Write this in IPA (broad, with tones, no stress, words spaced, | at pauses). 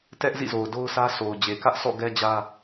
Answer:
tɛ˦ʔzḭ˦˨zo˨ʊ̯ do˦ʊ̯sʰä˦ sʰo˨ʊ̯d͡ʑe˨ kä˦ʔsʰɔ̰˦˨ ɡɛ˦d͡ʑä˦